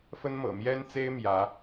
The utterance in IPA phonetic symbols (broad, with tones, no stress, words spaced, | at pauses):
fə˥nmɤ̰˨˩ mjɛ˥nt͡se˥ɪ̯ mjä˧˥